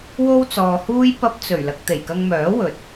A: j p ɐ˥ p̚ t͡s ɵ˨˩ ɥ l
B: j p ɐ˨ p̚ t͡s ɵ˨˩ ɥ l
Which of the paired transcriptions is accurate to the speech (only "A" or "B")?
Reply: A